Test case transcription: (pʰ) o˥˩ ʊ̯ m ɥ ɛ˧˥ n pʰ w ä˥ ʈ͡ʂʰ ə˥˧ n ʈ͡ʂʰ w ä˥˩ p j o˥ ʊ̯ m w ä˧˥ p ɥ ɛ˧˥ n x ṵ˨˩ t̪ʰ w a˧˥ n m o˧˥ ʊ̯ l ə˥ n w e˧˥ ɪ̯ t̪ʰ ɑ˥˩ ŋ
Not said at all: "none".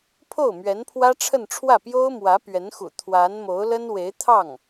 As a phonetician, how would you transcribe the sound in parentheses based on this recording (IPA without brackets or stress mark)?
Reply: pʰ